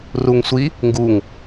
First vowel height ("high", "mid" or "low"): high